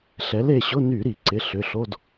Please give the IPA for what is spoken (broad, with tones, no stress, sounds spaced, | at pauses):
ɬ ɛ˨˥ l e˩˧˩ ɕ ʊ˧˥˧ n y˧˩˧ ɾ i˧˩˧ ǀ ɪ˩˧˩ ɬ ʏ˩˧˩ ɬ o˧˥˧ d